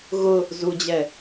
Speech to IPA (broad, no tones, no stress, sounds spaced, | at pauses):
ɣ ʊ | z u d͡ʑ ɛ